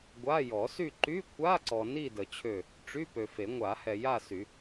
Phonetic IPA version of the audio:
ɡʷ a˧˥˧ j ɔ˨˩˦ s y˦˨ ǃ y˧˥˧ kʷʰ a˧˥˧ ǀ ɔ˨ n i˦˨ d ə˨ t͡ɕʰ ø˦˨ | ʈ͡ʂ y˧˥˧ p ø˨ f e˨˩˦ ŋʷ a˨˩˦ h ɛ˨ j a˦˨ s y˨˩˦

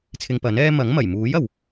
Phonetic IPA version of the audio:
t͡sʰ ɪ˧ ŋ p ɐ˨˥ n ɛː˥ m ɐ˨˥ ŋ m ɐ˨˩ j m uː˨˥ j ɐ˨ w

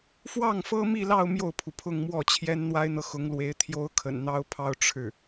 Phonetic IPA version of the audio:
f w ɑ˥˩ ŋ f ɤ˥ m i˥˧ l ɑ˥˧ ʊ̯ m j o˥˩ ʊ̯ pʰ u˩ pʰ ʊ˥˧ ŋ m w ɔ˥˩ t͡ɕʰ j ɛ˥ n n̪ w a˥ ɪ̯ n̪ ɤ˨ x ʊ˧˥ ŋ l w e˧˥ ɪ̯ t̪ʰ j o˥ ʊ̯ kʰ ə̰˨˩ n n̪ ɑ˥ ʊ̯ pʰ ɑ˥ ʊ̯ ʈ͡ʂʰ ɻ̩˥˩

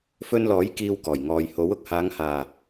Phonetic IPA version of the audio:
f ɵ˧ n l ɔː˨˥ j k iː˧ w k ɔː˨˩ j ŋ ɔː˨ j h o˨˥ w ʊ˨ k̚ h aː˨˧ ŋ h aː˨˩

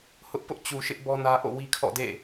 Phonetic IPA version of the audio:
h ʊ˦ ʔ p ʊ˦ ʔ t͡ɕ u˨ ʃ ɪ˦ ʔ b ɔ˦ n ä˦ ʔ o̰˦˨ w i˦ kʰ ɔ̰˦˨ d ḛ˦˨

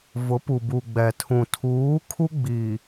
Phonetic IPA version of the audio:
v ʊ˨˦ p u˨ b u˨ ɡ͡b ɛ˨ tʰ ũ˨ tʰ uː˨˦ kʰ u˦ ɡ͡b iː˨

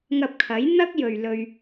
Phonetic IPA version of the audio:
ŋ ɐ˧ p̚ kʰ ɐ˨˥ j n̪ ɐ˥ k̚ j ɵ˨ ɥ l ɵ˧ ɥ

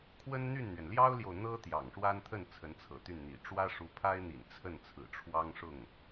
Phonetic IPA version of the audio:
kʰ w ə˥ n n̪ y˥˩ n n̪ ɥ ɛ˩ n l j ɑ˥ ʊ̯ l j o˨ ʊ̯ n̪ ɤ˥ t̪ j ɑ̰˨˩ ŋ ʂ w a˥ n t̪ʰ ə˥˩ n t͡sʰ ə˧˥ n t͡sʰ ɤ̰˨˩ t̪ y˥˩ n n̪ ḭ˨˩ ʈ͡ʂ w ä˥ ʂ u˧˥ pʰ a˥ ɪ̯ n̪ ḭ˨˩ n t͡sʰ ə˥˩ n t͡sʰ ɹ̩˨˩ ʈ͡ʂʰ w ɑ˥ ŋ ʂ ʊ˥˩ ŋ

